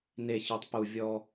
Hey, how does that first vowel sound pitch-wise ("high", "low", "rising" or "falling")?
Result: low